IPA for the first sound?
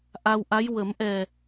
ʔ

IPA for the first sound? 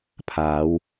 pʰ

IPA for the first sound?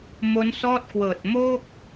m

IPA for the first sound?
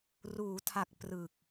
r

